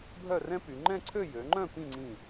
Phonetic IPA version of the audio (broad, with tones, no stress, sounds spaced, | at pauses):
bʱ œ˥˧ r ɛ̃˥ p y˩˧ ŋ͡ǃ ɛ̃˥˧ ǀʰ ø˥˧ j ø˩˧ ŋ͡ǃ œ̃˥˧ p ĩ˥˧ ŋ͡ǀ ĩ˧˩